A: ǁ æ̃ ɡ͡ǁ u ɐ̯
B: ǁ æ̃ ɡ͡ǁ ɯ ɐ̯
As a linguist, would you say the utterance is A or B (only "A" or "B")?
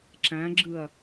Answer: B